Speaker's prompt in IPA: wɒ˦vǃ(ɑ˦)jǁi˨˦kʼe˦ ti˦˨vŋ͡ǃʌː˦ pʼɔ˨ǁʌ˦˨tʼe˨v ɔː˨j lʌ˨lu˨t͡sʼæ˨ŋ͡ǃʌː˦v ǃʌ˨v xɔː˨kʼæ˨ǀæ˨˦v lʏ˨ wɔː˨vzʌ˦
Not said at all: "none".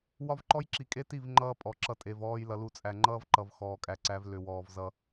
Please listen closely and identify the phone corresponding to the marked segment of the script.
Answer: ɔ˦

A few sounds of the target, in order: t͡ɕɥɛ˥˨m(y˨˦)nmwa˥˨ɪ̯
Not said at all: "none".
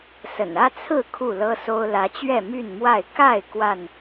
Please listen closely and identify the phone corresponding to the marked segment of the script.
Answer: y˥˨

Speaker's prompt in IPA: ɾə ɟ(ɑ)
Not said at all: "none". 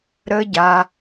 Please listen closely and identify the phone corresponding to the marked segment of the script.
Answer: a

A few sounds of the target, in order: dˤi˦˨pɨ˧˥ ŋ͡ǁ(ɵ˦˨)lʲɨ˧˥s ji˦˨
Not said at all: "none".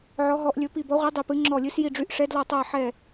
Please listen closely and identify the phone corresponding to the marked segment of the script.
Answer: ɔ˦˨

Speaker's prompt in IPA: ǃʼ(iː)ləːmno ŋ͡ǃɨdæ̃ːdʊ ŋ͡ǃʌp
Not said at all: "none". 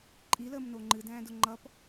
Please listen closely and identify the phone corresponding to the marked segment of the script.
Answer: i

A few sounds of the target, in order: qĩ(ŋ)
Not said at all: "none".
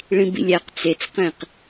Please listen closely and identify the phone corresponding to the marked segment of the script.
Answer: q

